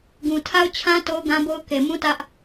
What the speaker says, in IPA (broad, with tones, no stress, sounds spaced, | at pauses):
ɡ ũ˨ tʰ a˦ ʊ̯ t͡ɕʰ ã˦ t o˦ ʊ̯ ɡ ã˦ b o˦ ʊ̯ k e˨ m ũ˦ t ä˦ ʔ